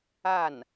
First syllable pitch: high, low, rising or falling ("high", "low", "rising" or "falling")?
falling